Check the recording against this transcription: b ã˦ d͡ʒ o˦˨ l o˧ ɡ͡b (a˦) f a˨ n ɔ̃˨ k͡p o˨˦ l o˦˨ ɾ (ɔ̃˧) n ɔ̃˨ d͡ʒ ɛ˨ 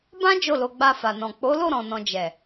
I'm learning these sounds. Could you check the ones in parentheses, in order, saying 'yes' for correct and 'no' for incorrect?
no, no

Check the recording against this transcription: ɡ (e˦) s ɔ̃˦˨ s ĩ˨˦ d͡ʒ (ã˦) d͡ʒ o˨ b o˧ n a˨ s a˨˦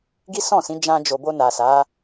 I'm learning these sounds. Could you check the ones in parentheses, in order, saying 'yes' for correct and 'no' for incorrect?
no, no

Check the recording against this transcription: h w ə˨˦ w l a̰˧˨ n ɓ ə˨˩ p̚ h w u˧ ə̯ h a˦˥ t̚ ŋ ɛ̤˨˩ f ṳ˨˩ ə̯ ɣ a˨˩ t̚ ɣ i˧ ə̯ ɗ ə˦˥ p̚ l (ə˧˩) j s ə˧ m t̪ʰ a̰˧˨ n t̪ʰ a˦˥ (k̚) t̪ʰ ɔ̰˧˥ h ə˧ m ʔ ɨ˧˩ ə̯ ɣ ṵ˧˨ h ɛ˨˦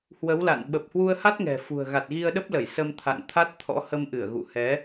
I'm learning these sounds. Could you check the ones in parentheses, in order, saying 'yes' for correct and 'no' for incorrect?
yes, no

